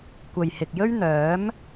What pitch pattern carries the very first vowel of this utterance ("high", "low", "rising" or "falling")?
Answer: low